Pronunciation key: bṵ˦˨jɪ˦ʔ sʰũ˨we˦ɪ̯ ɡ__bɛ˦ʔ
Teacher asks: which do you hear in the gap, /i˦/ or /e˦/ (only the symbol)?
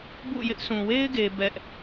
e˦